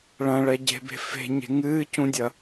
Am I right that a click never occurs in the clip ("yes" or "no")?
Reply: yes